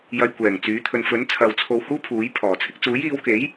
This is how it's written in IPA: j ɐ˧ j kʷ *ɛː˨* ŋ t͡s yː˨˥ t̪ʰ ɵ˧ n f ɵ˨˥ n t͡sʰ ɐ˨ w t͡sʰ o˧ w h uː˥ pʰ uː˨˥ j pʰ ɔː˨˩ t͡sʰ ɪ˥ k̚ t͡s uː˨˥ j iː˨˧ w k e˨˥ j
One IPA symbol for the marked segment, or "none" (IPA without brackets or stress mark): ɛː˨˩